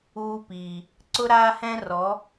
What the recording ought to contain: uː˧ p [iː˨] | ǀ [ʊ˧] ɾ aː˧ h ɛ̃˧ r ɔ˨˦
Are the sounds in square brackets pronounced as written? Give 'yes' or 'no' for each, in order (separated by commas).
yes, yes